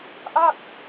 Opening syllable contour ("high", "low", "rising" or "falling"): falling